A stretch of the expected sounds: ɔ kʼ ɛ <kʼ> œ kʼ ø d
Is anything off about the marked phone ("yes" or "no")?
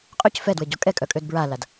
no